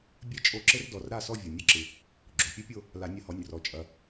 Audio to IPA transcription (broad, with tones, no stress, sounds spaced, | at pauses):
bʲ ɛ˥ t͡ʃʼ o˦˨ ǁ ɘ˥ r d ɔ˩˧˩ r ɾ a˦˨ s ɔ˦˨ vʲ o˩ nʲ ɐ˥ ǁ ɨ˩ | ɡ͡ǁ o˩ pʲ ɛ˥ pʲ o˦˨ | l a˨˩˦ nʲ ɐ˨˥ h ɔ˩˧˩ nʲ r ɔ˩ t͡ʃʼ ɐ˩